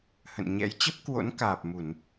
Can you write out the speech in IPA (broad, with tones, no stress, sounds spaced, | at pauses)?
h ə̰˧˨ n ɲ ɛ̰˧˥ j t͡ɕ ə˦˥ p̚ k w o̰˧˥ n k aː˨˩ p̚ m u˧˩˨ n